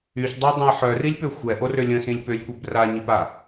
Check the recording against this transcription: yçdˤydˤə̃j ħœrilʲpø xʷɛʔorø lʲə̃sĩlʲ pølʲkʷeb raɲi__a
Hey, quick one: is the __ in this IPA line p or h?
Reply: p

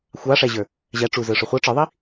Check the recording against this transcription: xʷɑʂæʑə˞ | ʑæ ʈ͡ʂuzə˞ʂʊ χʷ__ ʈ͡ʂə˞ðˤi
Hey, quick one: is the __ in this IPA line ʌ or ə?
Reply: ʌ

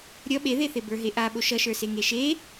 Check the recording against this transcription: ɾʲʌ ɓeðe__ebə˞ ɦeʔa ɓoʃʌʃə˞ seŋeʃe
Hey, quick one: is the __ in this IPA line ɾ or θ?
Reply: θ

